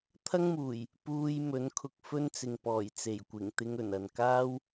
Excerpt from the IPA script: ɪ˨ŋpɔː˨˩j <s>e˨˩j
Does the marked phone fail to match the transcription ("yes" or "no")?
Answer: yes